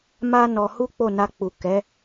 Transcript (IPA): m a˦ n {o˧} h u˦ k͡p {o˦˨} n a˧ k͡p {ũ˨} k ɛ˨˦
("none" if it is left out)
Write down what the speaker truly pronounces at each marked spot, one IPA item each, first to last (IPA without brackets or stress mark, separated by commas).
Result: ɔ˧, o˦˨, u˨